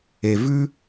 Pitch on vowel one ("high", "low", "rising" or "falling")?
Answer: low